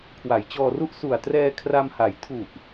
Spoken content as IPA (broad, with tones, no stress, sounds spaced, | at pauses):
kʰ w a˩˦ j t͡ɕ ɔː˧ r u˥˩ ʔ s u˨˩ a̯ t r ɛː˧ kʰ r a˧ m h a˩˦ j tʰ u˨˩ ʔ